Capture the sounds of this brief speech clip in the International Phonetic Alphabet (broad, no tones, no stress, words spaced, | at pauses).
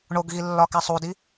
ɳoɡɣilːɒkæsˤ udi